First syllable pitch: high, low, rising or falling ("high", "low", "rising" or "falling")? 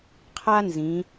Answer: high